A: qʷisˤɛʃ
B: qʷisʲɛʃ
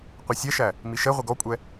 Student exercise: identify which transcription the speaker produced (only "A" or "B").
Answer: B